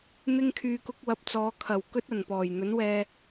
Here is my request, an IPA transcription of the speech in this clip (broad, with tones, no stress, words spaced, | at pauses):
n̪ɪ˧ŋkʰyː˨kʊ˧k̚ wɐ˨˥p̚t͡sɔː˨˧ kʰɐ˨˩w kɵ˥t̚ɐ˨˩npɔː˨˩j n̪ɵ˨˥nwɛː˧